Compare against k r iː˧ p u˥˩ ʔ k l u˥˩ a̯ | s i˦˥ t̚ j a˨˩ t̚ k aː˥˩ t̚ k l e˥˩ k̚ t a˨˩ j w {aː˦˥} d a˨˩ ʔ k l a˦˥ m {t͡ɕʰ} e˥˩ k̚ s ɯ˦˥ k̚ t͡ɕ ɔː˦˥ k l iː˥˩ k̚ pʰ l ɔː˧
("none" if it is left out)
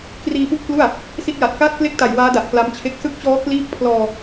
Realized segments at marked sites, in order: aː˦˥, t͡ɕʰ

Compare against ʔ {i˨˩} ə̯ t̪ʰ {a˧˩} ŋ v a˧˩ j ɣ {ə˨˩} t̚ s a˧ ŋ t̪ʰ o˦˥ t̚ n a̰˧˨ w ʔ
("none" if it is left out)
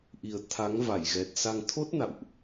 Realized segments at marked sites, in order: i˨˩, a˨˦, ɛ˨˩

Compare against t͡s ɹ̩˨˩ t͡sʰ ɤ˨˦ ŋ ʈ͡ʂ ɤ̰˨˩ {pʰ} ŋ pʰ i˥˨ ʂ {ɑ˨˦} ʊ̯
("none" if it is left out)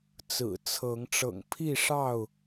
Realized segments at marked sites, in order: none, ɑ˥˨

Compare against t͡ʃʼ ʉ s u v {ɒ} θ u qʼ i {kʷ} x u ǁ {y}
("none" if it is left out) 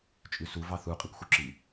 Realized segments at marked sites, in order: ɑ, kʷ, i

